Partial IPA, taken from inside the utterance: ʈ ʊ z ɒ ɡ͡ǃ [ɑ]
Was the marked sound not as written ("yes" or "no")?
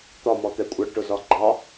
no